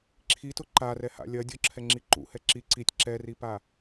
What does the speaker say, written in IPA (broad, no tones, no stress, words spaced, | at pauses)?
ǁʰitʊ ǃarɛha̰ lʲɐ dʲʊǁʰɛŋ͡ǁi ǃṵhɛ ǁi ǀitʲ ǁɛripa